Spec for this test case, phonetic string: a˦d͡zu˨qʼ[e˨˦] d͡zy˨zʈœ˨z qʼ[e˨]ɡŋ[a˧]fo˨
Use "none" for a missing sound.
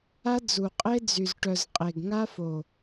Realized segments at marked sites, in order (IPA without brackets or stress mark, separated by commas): e˦, e˨, a˦